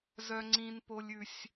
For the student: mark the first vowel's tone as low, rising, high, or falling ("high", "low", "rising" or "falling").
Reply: high